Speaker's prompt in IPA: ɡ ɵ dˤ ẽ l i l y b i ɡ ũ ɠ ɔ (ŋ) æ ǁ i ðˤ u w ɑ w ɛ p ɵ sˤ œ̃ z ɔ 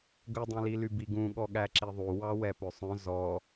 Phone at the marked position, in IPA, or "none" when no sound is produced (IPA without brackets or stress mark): ɠ